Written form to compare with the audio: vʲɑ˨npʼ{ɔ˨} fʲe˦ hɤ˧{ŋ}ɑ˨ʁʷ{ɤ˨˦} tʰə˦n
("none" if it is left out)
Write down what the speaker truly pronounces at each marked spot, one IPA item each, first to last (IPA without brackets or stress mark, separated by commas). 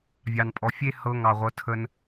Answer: ɔ˨, ŋ, ɤ˨˦